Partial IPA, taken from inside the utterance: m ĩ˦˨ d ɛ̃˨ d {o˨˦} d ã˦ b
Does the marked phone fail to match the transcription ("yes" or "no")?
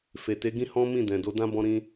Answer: no